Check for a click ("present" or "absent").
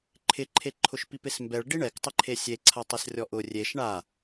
present